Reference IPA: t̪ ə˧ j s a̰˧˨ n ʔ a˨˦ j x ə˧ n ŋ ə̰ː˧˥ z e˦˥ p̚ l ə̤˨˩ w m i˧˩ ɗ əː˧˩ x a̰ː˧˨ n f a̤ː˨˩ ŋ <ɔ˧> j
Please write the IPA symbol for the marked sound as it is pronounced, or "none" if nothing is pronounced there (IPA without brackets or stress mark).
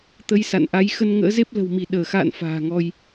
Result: ɔ˧